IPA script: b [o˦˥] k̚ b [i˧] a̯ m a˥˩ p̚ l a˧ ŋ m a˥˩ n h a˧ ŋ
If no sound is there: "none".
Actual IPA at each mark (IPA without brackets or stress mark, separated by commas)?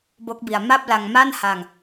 o˦˥, i˧